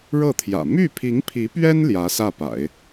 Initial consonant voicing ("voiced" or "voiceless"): voiced